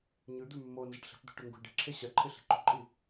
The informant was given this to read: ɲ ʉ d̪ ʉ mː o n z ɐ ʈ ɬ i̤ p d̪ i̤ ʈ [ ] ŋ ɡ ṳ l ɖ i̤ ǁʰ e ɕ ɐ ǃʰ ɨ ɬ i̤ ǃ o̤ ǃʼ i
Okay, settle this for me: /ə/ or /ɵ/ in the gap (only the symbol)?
ɵ